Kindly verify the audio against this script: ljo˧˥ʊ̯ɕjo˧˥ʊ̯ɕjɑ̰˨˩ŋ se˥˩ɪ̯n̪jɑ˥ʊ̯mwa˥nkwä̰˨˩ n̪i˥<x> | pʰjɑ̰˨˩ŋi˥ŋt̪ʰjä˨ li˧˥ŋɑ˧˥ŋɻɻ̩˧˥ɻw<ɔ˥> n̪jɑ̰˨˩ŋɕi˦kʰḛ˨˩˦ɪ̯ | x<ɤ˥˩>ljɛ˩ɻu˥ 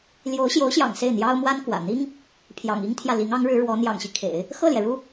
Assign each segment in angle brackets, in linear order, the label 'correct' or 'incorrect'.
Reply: incorrect, incorrect, correct

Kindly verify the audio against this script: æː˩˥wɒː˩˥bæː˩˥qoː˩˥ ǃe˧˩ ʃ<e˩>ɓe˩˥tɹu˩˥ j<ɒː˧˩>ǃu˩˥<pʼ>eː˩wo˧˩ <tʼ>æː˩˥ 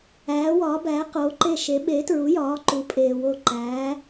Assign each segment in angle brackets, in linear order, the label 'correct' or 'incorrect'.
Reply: incorrect, incorrect, correct, incorrect

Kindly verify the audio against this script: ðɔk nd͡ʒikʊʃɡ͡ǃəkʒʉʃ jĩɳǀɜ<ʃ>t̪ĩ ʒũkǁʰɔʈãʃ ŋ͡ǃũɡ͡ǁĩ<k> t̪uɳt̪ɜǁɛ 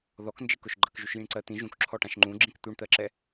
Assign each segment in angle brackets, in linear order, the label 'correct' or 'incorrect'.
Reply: incorrect, correct

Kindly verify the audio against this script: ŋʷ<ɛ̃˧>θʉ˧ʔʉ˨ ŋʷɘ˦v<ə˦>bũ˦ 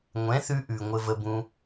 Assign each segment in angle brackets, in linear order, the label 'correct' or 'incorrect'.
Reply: incorrect, correct

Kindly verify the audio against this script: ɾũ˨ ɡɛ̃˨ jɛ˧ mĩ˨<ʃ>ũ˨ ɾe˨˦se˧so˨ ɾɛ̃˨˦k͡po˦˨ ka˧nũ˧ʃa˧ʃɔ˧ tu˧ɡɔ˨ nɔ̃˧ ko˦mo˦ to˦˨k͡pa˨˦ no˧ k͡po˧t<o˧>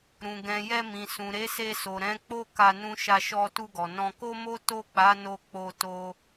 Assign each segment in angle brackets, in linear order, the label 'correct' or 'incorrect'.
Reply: incorrect, correct

